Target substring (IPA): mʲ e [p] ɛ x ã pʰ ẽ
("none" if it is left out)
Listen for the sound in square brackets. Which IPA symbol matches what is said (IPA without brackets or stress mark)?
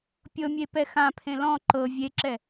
p